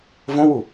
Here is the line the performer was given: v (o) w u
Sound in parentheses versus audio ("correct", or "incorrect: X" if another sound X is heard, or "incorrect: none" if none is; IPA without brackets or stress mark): incorrect: õ